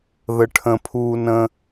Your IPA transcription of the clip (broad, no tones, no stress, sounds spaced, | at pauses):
ð ə ʈʰ ə̃ pʰ uː n ə̃